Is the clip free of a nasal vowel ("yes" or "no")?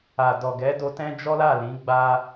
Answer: no